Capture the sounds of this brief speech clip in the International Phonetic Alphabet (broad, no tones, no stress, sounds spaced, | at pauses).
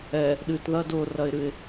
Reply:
ɛ | ɗ ɨ t ð ɐ d ʊ r ɐ ɪ̯ ɾ ɨ ɪ̯